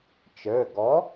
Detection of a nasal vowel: absent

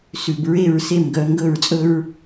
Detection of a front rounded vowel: present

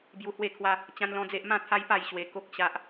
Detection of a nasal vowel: present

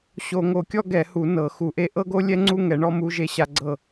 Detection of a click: present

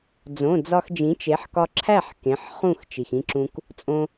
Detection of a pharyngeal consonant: present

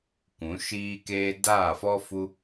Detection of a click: absent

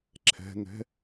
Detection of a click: present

